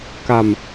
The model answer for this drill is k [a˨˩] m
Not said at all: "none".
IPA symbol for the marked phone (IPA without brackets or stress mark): a˨˩